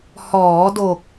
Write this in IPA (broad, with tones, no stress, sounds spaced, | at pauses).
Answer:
h ɔː˩˦ d o˨˩ k̚